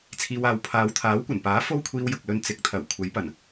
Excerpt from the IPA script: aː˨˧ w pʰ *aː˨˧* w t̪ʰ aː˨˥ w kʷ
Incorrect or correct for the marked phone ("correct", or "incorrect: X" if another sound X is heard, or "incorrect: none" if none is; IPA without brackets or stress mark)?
correct